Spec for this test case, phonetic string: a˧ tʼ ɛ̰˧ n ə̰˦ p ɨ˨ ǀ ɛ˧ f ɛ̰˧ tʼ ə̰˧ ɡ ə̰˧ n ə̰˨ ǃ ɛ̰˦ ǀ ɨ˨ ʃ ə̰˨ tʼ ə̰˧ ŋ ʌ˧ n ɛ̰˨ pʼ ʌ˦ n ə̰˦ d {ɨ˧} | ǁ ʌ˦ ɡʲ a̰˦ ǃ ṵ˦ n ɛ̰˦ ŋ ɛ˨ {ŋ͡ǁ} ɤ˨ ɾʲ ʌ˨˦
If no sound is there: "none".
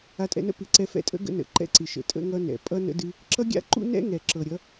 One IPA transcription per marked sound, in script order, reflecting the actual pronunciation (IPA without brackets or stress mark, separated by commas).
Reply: ɨ˦, ǁ